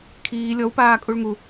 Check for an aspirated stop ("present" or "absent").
present